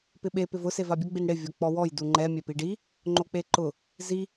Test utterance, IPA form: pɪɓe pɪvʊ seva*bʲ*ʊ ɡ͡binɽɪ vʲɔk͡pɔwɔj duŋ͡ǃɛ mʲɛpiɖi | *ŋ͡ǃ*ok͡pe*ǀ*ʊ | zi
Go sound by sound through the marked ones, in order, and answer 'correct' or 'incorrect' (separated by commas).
correct, correct, incorrect